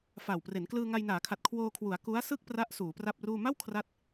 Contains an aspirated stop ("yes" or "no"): yes